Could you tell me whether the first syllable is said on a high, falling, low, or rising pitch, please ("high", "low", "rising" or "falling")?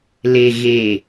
low